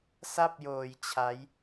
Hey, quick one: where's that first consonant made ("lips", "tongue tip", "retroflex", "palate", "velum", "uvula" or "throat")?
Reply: tongue tip